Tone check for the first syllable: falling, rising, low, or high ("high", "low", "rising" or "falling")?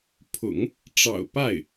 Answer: low